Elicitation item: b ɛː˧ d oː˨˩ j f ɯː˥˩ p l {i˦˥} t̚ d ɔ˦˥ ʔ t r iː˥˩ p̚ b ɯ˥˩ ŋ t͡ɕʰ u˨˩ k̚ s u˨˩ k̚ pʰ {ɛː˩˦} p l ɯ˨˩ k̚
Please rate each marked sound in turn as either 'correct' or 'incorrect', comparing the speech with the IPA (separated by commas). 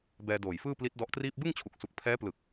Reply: correct, incorrect